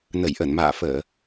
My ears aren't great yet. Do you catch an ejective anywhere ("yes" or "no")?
no